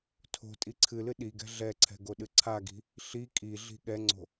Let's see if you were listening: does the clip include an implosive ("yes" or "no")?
yes